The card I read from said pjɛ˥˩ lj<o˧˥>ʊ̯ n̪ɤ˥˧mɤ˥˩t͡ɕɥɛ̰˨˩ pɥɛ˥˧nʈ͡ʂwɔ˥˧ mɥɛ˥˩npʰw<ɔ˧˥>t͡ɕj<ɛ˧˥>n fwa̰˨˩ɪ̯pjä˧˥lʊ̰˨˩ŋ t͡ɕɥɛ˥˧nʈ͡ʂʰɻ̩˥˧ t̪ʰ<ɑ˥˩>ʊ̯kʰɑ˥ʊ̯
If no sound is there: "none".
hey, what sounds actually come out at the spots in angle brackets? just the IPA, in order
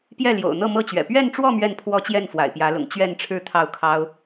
o̰˨˩, ɔ˥, ɛ˥˩, ɑ˥˩

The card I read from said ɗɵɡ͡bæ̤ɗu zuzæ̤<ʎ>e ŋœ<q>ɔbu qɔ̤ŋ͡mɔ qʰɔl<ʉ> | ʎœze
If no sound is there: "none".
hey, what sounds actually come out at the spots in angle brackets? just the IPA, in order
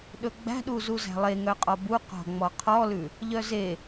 lˠ, qʼ, ʉ

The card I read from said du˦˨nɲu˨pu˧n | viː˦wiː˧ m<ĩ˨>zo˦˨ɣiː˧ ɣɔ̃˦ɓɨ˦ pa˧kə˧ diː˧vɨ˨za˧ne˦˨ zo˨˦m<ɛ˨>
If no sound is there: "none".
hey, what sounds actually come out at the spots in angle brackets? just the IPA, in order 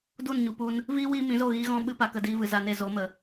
ĩ˨˦, ə˨

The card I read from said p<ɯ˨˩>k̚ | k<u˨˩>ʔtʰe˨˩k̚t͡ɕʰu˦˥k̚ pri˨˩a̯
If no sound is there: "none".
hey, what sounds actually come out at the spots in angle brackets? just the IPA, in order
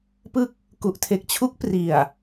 ɯ˦˥, u˨˩

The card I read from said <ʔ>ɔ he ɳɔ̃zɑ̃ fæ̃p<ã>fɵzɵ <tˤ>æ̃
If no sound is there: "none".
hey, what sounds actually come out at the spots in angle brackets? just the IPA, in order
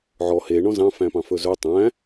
ʕ, ɑ̃, tˤ

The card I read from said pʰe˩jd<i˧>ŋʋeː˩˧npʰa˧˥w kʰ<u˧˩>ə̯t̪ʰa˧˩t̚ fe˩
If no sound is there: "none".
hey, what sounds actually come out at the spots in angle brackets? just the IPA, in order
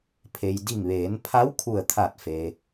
i˧˩, u˧˩

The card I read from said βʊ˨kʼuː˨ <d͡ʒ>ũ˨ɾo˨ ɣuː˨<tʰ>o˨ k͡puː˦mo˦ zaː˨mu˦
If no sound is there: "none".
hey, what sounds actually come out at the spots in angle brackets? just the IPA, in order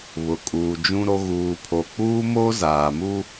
d͡ʒ, pʰ

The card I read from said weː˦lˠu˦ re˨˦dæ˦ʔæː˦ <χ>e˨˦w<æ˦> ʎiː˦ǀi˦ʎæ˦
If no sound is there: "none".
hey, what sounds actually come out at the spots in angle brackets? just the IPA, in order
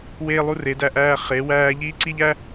χ, æː˦

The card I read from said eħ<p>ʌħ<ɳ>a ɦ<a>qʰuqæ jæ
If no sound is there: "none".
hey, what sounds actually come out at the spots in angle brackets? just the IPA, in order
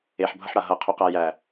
bʱ, ɽ, ʌ

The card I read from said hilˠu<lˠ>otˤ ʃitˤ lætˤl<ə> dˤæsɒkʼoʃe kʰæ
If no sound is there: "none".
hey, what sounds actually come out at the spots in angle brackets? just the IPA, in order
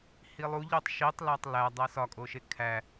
ʎ, æ

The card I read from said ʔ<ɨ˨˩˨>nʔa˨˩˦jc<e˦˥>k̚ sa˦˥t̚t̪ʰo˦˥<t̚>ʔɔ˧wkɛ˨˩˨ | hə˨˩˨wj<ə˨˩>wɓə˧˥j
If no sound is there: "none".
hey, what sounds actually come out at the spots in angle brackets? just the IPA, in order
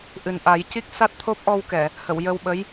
ɨ˨˩, i˦˥, p̚, ə˧

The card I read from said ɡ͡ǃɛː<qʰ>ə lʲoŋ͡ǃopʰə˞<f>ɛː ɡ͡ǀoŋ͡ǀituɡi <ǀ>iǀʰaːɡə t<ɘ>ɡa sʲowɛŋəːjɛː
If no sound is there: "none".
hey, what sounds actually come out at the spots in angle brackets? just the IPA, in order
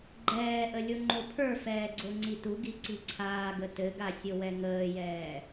ʔ, f, ǀ, ɘ

